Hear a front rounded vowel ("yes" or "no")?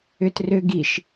yes